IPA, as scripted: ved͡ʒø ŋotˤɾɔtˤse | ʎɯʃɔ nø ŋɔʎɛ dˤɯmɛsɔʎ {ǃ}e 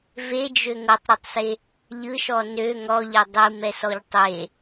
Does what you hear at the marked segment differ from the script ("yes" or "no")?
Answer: yes